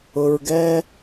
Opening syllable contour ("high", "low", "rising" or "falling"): low